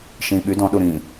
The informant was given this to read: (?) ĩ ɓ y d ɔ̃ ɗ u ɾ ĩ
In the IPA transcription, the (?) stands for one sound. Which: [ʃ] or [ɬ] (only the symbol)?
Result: ʃ